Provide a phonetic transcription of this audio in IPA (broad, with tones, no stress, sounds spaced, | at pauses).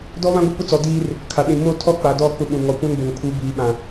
d ɔ˦ β ã˦ ɡʷ ɪ˦˨ p ʊ˦ t͡s ɔ˨ d iː˦ r | kʰ a˨ ɗ ĩ˨ m o˦˨ tʰ ɔ˦ k͡p a˨ d ɔ˦˨ k͡p ʊ˦˨ ɓ ũ˨ ŋ ɔ˨ kʷ ã˦ n b o˨ ŋ pʰ u˨˦ b iː˨ ɓ ã˨